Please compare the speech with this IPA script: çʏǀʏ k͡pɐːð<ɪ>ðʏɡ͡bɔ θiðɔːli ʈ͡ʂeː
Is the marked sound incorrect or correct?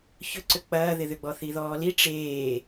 correct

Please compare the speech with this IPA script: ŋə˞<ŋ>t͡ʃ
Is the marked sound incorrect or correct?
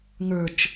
incorrect: none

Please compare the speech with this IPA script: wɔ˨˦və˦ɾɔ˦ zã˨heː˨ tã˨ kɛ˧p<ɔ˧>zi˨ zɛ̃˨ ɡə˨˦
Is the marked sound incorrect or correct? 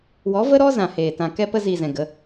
incorrect: ə˧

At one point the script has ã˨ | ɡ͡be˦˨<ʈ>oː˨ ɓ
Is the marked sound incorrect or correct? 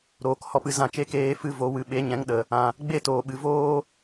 incorrect: t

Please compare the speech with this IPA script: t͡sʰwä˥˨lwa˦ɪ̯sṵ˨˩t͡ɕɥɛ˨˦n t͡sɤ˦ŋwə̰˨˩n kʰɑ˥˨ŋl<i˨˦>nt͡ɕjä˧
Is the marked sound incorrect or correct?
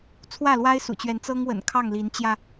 correct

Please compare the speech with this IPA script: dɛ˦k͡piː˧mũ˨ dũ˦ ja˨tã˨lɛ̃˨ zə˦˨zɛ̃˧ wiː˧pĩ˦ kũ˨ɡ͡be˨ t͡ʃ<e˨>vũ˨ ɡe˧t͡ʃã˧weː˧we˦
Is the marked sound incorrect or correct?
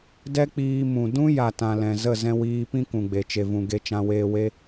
correct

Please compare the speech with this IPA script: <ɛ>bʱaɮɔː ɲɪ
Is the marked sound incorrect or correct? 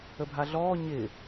incorrect: ə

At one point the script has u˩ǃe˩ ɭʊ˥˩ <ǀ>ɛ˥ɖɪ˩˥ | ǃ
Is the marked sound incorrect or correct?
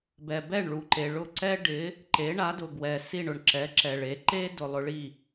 correct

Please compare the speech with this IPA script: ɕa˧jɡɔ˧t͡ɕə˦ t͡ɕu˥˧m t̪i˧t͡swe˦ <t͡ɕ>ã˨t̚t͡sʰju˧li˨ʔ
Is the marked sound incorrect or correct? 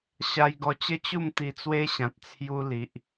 incorrect: ɕ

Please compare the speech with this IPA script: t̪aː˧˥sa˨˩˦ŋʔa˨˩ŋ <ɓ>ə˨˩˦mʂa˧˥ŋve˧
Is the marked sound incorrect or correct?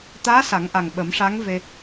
correct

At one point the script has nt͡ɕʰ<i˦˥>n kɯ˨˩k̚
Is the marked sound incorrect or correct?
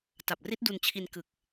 incorrect: i˧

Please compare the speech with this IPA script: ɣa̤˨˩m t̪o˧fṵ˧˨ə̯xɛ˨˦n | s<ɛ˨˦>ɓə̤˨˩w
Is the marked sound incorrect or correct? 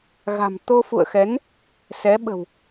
correct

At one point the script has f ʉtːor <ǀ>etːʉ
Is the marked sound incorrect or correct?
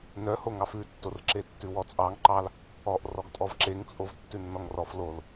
incorrect: ǁ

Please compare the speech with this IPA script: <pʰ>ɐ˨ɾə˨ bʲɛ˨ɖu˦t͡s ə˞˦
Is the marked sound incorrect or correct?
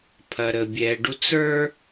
correct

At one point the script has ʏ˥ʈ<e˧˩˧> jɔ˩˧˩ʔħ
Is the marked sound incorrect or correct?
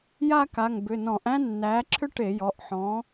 correct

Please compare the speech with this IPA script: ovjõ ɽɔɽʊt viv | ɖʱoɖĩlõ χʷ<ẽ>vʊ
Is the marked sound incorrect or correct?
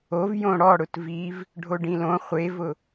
incorrect: e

